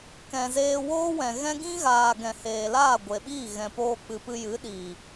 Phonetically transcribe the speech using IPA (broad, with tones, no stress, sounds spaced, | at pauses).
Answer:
k ɛ̃˨ z eː˧ w oː˦ w ɛ̃˨ ɣ ɛ̃˦ ɡ ĩ˦ ɣ aː˨ ɡ ɛ̃˨ h eː˨ l aː˦˨ ɡʷ e˨ ɓ iː˦˨ ɣ ɛ̃˨ p oː˧ k͡p ɨ˨ p ɨ˧ j ɨ˨˦ ɗ iː˨